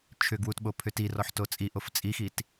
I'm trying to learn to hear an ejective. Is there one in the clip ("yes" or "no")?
yes